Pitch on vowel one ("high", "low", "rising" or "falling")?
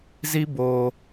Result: high